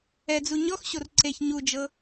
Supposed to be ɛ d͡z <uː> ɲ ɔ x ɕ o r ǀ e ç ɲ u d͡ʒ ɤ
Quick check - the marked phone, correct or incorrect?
incorrect